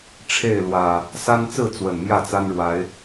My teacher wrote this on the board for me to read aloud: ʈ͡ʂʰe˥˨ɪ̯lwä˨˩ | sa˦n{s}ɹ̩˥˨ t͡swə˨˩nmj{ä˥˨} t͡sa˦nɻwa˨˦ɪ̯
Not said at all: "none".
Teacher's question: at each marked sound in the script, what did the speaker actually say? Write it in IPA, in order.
t͡s, ä˥˨

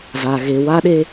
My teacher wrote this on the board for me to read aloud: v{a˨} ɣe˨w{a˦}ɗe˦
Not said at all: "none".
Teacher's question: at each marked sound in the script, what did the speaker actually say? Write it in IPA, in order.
a˨, a˦

